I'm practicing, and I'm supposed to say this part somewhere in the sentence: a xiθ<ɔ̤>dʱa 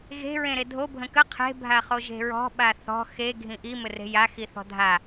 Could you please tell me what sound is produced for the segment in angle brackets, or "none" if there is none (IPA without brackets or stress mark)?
ɔ̤